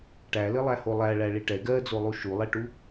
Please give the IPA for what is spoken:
ʈ æ l ɘ lˠ æ h o lˠ æ ɭ æ ɭ i ʈ ɛ ɡ ɜ d͡z o lˠ u ʃ u lˠ ɛ ʈ u

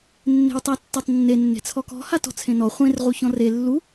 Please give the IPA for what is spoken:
nː e̤ w tˤ a tː ɔ tˤ nː e nː e̤ t͡sʰ ɔ k ɔ̤ h a t ɔ̤ t͡sʰ ẽ n ɔ χʷ ẽ r ʁ u ç ɔ̃ r e lː u

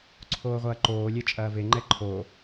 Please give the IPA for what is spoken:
ǀʰ oː ʁʷ ɐː ǃ oː lʲ e t͡ʃʼ ɐː v e ŋ͡ǃ ɛ ǃʰ o

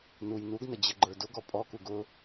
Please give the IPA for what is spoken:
n u j n u ɡ n ə d͡ʑ ə ɡ͡ǃ ə˞ d ʊ ɡ ɔ pʼ ɔ k u ɡ ʊ

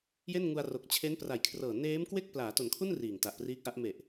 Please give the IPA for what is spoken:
j e˥˩ n ŋ u˧ a̯ r o˨˩ k̚ t͡ɕʰ e˦˥ n p r a˨˩ j kʰ r ɤː˨˩ n eː˦˥ m k w e˥˩ k̚ p l aː˩˦ t o˩˦ n kʰ u˥˩ n r iː˨˩ ŋ t a˨˩ ʔ p r iː˦˥ k̚ ʔ a˦˥ ʔ m e˨˩ ʔ

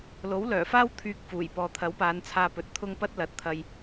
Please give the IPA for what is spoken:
l o˨˥ w l œː˨˩ f aː˥ w t̪ʰ yː˧ k̚ f uː˨˩ j p ɔː˨ t̪ʰ ɐ˨˥ w p aː˨˧ n t͡sʰ aː˧ p ɵ˨˥ t̚ t̪ʰ ʊ˥ ŋ p ɐ˥ t̚ l ɐ˨˥ t̚ t̪ʰ ɐ˧ j

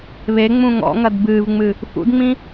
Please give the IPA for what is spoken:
β e ŋ͡m ũ ŋ ɔ̰ ŋ ɐ d b ɨː v ŋ͡m ɨ | f ṵ d ŋ͡m ĩ

